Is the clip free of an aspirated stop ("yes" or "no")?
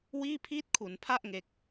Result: no